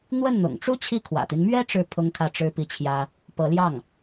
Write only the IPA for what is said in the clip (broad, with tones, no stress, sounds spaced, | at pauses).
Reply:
n̪ w ə˥˩ n n̪ ʊ̰˨˩ ŋ ʈ͡ʂ u˥ t͡ɕʰ i˥˩ kʰ w ä̰˨˩ t̪ i˦ n m ɥ ɛ˥ ʈ͡ʂ ɻ̩˥˩ pʰ ʊ˥ ŋ kʰ ä˥˩ ʈ͡ʂ ɻ̩˥ p i˥˩ t͡ɕʰ j ä˥ | p ɤ˧˥ l j ɑ˥˩ ŋ